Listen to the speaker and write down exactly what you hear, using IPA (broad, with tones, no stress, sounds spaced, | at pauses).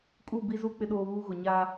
kʼ u˦˨ b i˦ z u˦ k͡p ɪ˦ ɗ oː˦ β uː˦ ɣ ʊ˨ ɲ aː˦